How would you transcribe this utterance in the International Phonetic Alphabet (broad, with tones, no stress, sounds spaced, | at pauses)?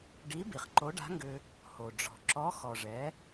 ɖ i˧˥ b i˩ χ ǃ o˧˥ ɖ a̤˧˥ ŋ ɡ ʏ˧ | h o˩ ɖ͡ʐ ɔ̤˩ ǁ ɔ˧˥ x ɔ˩ ʐ ɛ˩˧